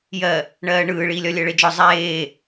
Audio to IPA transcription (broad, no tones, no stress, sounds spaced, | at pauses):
j ɜ | ɳ ɜː ɳ ɯː ɭ iː lʲ ɒ lʲ ɜ ɭ e d͡ʒ ɔ zˤ eː